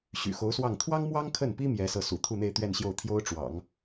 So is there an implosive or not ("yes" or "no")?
no